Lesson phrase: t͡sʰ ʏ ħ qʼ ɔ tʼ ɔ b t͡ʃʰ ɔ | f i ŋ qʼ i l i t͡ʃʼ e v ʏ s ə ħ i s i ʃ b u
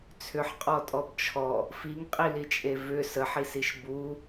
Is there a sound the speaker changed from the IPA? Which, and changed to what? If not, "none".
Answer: none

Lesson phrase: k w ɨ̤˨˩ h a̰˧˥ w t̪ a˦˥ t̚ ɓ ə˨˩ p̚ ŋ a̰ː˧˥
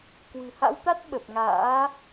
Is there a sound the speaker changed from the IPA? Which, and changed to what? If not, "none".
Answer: none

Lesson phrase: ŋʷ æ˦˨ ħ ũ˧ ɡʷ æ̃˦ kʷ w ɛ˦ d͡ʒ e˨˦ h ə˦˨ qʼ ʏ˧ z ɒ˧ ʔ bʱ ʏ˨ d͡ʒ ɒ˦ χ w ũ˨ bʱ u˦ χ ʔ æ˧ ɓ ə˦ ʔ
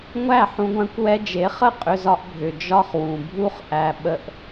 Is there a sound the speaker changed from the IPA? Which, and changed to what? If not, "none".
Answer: h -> χ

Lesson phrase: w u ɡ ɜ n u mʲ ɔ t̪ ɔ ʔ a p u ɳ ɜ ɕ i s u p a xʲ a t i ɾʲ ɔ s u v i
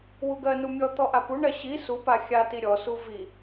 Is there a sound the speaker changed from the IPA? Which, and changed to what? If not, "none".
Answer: none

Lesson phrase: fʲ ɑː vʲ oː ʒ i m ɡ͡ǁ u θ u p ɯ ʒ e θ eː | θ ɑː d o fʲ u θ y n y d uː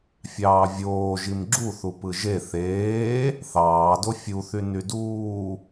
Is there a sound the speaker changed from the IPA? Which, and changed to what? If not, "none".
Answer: none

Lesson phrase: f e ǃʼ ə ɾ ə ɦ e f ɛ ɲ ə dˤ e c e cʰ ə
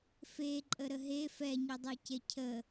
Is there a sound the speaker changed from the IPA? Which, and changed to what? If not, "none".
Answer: none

